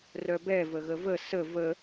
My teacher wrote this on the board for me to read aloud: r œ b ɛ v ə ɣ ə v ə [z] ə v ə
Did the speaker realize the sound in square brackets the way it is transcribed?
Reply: no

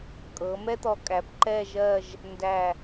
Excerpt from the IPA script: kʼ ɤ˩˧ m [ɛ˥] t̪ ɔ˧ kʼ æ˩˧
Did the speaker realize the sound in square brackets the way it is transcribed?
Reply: yes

